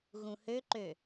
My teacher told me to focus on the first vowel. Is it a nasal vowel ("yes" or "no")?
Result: yes